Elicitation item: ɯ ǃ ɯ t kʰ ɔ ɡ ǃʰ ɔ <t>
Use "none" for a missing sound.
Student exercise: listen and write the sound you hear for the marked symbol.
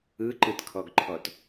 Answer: t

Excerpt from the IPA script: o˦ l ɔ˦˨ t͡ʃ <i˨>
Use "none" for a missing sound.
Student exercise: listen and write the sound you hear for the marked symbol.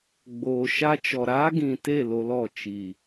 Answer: i˨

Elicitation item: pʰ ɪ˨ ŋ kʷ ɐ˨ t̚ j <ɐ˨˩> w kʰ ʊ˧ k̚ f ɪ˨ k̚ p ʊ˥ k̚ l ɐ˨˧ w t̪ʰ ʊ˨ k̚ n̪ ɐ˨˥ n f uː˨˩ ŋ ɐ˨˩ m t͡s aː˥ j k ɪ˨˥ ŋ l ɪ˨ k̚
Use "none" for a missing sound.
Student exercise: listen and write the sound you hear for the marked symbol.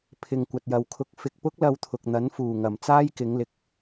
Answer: ɐ˨˧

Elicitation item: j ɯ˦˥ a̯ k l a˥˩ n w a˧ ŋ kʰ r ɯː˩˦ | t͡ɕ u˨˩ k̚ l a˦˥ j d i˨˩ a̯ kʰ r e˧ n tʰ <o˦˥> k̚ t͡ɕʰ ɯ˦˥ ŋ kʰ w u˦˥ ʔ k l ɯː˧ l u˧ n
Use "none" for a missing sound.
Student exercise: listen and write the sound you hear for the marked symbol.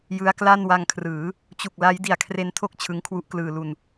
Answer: o˥˩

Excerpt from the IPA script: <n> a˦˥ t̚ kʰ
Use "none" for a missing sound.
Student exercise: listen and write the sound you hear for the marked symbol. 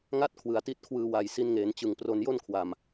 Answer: ŋ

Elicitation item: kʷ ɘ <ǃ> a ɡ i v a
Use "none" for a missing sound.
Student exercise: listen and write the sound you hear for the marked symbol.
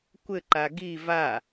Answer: ǃ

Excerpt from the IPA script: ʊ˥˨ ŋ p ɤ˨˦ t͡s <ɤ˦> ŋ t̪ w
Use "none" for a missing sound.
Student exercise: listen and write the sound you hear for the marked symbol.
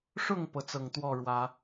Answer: ɤ˨˩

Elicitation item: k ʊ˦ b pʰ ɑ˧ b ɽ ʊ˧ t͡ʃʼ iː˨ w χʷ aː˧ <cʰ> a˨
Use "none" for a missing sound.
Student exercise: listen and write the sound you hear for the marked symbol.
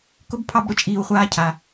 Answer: cʰ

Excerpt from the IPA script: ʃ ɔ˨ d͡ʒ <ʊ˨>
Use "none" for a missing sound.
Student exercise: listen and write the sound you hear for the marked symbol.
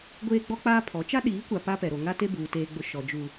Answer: u˨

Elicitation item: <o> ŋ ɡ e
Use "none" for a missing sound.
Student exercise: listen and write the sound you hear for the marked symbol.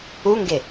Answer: u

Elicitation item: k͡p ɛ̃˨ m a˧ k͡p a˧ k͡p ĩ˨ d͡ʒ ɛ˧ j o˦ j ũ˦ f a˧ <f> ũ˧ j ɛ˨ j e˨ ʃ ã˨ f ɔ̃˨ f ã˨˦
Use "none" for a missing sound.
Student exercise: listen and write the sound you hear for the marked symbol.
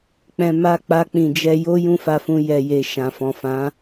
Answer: f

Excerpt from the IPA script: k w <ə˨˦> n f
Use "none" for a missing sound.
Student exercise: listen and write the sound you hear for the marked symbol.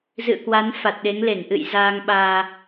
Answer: a˨˦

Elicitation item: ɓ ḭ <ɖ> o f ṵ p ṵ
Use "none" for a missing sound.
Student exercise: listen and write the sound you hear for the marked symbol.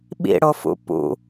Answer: ɽ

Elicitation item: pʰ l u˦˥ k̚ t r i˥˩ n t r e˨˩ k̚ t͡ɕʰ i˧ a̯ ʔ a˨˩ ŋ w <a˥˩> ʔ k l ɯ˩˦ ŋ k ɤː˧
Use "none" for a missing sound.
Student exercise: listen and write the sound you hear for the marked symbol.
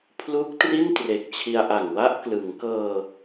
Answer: a˥˩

